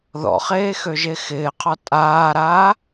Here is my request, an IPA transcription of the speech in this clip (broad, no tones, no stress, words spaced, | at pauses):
ðɔ̰χeːxøʒe xɪːqʰɒ tʼaːɾaː